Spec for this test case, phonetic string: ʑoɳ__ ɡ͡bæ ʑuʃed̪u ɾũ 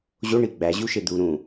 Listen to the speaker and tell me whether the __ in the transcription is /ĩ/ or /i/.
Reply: i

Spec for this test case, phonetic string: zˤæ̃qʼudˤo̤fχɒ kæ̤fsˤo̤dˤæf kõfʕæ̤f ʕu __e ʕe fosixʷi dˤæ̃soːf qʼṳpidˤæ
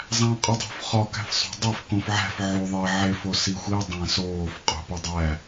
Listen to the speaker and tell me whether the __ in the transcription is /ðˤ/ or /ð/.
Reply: ðˤ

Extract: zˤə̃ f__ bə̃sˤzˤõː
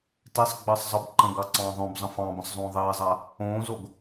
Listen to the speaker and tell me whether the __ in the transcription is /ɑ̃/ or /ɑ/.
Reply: ɑ̃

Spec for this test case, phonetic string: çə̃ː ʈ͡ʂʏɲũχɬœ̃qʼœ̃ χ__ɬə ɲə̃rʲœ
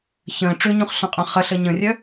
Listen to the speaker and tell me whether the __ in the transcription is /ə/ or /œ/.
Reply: ə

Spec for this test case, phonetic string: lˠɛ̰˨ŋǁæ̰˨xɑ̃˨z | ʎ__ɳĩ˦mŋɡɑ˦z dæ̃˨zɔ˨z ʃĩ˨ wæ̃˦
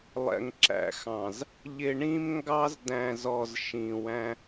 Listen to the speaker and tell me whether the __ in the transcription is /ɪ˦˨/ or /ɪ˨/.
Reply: ɪ˨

